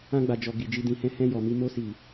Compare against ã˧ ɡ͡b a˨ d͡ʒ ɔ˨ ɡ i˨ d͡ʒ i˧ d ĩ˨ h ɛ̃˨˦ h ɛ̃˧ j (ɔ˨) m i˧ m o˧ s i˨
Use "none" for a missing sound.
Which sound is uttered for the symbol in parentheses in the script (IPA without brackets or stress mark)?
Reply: ɔ˨